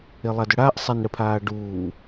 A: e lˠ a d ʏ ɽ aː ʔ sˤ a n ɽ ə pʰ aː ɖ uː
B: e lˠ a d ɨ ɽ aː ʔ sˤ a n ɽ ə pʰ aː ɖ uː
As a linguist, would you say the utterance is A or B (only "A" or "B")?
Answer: A